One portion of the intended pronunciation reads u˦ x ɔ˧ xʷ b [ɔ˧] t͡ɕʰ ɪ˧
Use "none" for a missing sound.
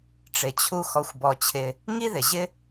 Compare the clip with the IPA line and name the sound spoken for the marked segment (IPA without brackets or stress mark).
ɔ˧